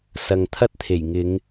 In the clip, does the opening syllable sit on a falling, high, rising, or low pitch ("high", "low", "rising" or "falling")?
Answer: low